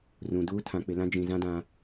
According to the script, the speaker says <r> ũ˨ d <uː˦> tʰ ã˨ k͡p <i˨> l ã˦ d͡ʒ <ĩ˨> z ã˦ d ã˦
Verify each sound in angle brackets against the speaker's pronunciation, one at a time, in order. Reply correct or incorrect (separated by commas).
correct, correct, incorrect, correct